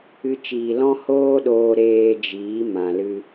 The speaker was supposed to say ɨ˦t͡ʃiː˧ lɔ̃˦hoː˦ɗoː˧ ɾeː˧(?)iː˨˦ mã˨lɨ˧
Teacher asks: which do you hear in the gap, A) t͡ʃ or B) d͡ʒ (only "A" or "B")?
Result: B